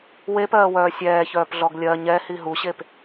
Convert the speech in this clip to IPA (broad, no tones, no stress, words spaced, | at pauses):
wepɜːwœː sʲɛːçœːpɮɔɡ lʲɜ ɲɛhi ɦuɕep